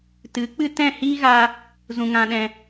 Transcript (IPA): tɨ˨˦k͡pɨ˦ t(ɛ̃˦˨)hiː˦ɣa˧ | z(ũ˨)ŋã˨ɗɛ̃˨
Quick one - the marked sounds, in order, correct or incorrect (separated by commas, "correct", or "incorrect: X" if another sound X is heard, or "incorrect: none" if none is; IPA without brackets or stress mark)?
correct, correct